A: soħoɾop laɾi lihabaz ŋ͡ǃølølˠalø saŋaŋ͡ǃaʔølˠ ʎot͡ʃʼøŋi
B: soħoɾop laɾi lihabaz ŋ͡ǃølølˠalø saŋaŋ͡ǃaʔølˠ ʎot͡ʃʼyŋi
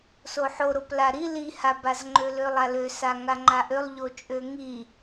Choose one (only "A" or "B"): A